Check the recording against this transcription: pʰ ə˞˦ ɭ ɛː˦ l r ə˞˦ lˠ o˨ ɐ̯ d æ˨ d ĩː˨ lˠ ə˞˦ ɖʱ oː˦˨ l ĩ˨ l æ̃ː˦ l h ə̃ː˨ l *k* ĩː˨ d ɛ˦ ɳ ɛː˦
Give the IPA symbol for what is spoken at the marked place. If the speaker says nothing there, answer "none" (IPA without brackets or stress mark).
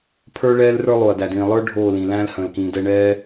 k